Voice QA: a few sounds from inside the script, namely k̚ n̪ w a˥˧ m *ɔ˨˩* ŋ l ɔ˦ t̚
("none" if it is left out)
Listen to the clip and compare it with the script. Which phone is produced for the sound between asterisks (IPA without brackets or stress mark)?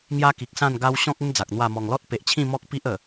ɔ˨˩